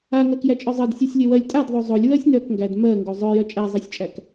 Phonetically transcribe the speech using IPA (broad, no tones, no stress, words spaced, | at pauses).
aŋɜk jæt͡ʃʼœzˤɜd sʲosʲlʲœwɜlʲ tʼadðˤo zˤolʲ wɜsʲnœkŋɡæd mɜ ŋɡozˤœjœ t͡ʃʼæzˤɜsʲt͡ʃʼæk